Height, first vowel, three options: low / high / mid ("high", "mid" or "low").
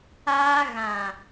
low